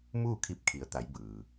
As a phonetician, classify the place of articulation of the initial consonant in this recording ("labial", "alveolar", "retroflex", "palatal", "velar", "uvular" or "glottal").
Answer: labial